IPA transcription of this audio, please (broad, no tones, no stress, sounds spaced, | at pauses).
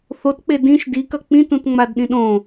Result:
θ o t k͡p e d ĩ ʃ d i k ʌ k͡p ĩ t ũ t ŋ͡m a d ɗ ĩ ɗ õ